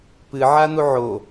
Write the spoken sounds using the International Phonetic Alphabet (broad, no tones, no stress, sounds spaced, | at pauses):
p ɨ ʕ a n̪ u ʕ o